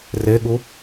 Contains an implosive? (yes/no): yes